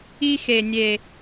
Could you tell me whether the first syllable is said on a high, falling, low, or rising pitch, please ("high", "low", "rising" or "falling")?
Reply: high